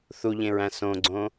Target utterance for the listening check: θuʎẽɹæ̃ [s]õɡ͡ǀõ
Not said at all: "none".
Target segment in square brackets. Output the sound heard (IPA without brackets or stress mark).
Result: s